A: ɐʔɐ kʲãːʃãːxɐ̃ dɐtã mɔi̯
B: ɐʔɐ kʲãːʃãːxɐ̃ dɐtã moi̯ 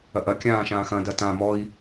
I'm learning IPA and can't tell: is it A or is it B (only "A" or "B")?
A